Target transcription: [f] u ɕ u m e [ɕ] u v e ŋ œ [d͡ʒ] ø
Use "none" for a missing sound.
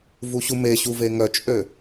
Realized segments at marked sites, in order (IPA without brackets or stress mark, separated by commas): v, ɕ, t͡ʃʼ